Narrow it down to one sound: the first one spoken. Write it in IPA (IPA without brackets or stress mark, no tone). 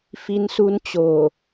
f